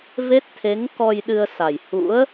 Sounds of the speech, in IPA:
v e˦˥ t̚ t̪ʰ e˨˦ ŋ k ɔ˧ j ɗ ɨ˧ ə̯ s a˨˩ j h ṵ˧˥ ə̯

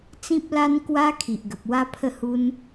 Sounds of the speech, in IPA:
t͡s ĩ˦ p̚ l a˦ n k w a˦ kʰ i˨ ʔ ɡ ə˨ p̚ w a˦ pʰ ə˥˧ h u˦ n

